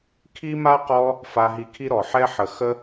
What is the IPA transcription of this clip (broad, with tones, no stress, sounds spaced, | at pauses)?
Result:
kʰ i˦ m a˦ q ɔ˧ | f a˧ ɦ i˧ kʰ i˦ ɾ ɔ˨ ħ ɛ˦ ħ ə˨ x ə˦